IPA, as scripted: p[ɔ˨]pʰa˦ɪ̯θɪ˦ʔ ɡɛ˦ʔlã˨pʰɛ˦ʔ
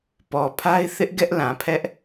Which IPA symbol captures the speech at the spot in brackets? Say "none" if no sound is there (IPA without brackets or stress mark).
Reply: ɔ˨